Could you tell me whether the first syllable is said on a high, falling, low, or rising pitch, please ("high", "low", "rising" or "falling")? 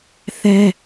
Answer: high